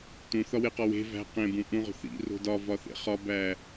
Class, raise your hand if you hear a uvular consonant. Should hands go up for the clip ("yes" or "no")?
yes